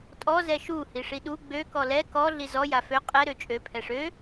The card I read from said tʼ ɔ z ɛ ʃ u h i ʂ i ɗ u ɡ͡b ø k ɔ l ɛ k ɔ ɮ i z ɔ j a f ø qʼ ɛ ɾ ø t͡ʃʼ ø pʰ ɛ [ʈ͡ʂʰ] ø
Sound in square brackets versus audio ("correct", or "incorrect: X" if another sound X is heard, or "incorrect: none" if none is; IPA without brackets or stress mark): incorrect: ʂ